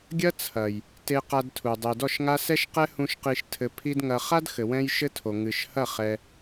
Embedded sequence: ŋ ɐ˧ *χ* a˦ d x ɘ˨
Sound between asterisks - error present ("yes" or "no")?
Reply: no